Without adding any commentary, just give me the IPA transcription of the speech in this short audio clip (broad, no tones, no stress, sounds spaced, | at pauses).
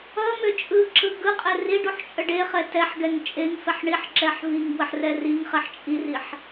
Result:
ʌ m ʏ t͡ʃʼ ɯ ǁ ɯ ɡ ɯ qʼ ɛ r i ɖ u ħ t͡ʃʼ ə ɖ e χ ɛ t ɛ ħ ɡ ɛ ŋ t͡ʃʼ e ŋ f ɛ ħ ɳ i ħ ǁ ɛ ħ v i ŋ b w ə ħ r ɛ r i ŋ χ ɛ ħ t͡ʃʼ i r i ħ